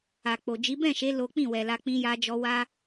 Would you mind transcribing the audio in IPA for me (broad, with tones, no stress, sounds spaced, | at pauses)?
a˨ k͡p o˨ d͡ʒ i˨˦ b ɛ̃˦˨ ʃ e˨˦ l o˦ k͡p ĩ˦˨ w ɛ˨ l a˧ k͡p ĩ˧ j a˧ d͡ʒ ɔ˧ w a˦